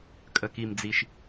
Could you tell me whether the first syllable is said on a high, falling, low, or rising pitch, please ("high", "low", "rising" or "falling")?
low